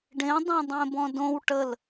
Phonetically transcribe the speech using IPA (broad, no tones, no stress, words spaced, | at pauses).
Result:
ɖẽdˤõ dˤẽbɔ̃dõw ʈəl